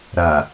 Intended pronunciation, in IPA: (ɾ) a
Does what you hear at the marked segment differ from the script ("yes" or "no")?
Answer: no